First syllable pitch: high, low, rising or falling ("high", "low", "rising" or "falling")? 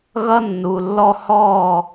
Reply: high